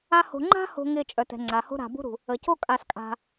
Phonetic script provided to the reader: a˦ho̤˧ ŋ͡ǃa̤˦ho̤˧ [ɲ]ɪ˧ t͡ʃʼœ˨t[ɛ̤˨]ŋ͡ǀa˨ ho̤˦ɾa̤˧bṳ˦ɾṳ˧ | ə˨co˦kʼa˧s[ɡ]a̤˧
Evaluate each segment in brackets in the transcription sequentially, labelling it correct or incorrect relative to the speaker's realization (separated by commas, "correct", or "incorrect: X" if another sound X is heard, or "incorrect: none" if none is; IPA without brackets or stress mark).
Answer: incorrect: ŋ, correct, incorrect: kʼ